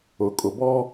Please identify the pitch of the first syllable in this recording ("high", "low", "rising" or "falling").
low